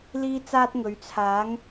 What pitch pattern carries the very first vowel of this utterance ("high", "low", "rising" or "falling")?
high